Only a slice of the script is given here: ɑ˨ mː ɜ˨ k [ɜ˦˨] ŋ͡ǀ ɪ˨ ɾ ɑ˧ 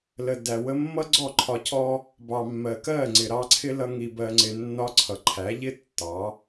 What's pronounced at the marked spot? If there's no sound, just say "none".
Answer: ɜ˦˨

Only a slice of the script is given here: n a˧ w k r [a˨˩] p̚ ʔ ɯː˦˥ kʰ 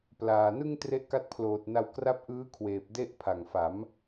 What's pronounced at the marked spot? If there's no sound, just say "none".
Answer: a˦˥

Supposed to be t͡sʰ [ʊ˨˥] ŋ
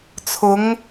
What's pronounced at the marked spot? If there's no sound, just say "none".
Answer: ʊ˨˥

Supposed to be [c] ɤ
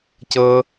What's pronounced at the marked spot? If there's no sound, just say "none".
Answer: c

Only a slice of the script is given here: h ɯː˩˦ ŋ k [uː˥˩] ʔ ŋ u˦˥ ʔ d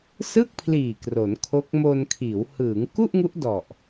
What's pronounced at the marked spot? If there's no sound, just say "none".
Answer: u˥˩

